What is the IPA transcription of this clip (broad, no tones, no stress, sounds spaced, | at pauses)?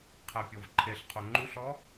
qʰ æ pʲ ɔ v ǃʰ e ɬ qʰ o ŋ͡ǃ u ɬ ɔ